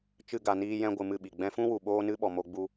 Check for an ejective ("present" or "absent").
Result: absent